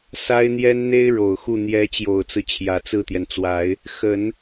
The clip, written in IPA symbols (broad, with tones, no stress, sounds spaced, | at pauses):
s a˥ ɪ̯ n̪ j ɛ˥ n n̪ e˥ ɪ̯ ɻ o˨˩ ʊ̯ x u˥˩ n̪ j ɛ˧˥ t͡ɕ j o˨˩ ʊ̯ t͡s ɹ̩˦ t͡ɕʰ j ä˨˩ t͡s ɹ̩˥˩ t̪ j ɛ˩ n t͡s w a˨˩˦ ɪ̯ | x ə˨˩˦ n